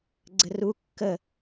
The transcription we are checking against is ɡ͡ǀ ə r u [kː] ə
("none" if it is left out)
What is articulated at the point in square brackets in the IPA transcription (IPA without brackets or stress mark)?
kː